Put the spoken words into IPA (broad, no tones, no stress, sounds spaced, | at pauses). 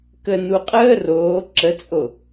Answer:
k ə n u qʼ əː r oː ǁ ə t͡sʼ o